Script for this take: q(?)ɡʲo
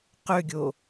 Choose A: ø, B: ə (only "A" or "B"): A